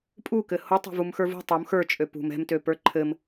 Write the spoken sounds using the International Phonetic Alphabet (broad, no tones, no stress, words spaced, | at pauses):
pʼukɘ hotˤɛ̤vumxə˞ vṳ tˤom xə˞t͡ʃʼø pṳm ɛ̤mtøpə˞ ǃʰɘm